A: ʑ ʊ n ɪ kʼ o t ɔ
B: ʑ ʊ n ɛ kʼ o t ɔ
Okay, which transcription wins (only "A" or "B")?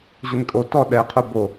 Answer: A